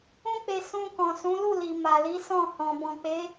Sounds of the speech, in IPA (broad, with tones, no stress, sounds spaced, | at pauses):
ũ˦ k͡p e˧ s ũ˧ k ɔ̃˨ s ũ˨˦ l u˦˨ l i˨ m a˨ l i˨˦ s ɔ̃˦˨ h ɔ̃˨ b ɔ̃˨ k͡p e˨˦